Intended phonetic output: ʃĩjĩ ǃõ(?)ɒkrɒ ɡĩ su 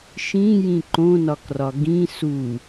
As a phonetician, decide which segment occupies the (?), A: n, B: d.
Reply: A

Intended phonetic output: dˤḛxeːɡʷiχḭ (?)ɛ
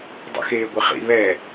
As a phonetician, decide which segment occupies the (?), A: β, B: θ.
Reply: A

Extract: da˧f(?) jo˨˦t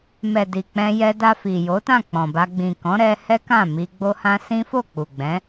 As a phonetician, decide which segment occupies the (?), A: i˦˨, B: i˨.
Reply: B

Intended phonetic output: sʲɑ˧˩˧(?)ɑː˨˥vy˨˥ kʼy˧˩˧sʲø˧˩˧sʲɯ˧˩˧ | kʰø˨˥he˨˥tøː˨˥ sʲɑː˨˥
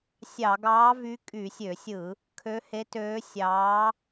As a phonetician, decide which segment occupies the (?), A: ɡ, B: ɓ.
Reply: A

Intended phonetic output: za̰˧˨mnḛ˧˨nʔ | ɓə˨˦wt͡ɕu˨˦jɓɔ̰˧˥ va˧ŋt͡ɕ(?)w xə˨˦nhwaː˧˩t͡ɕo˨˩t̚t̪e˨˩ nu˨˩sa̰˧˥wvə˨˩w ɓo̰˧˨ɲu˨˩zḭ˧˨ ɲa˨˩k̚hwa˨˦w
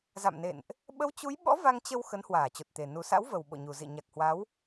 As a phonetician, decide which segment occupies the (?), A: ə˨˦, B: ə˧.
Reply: B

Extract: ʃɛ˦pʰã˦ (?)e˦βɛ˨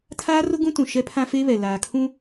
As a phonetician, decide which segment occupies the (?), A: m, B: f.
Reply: B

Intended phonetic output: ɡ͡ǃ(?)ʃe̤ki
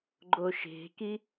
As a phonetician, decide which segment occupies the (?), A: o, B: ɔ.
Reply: A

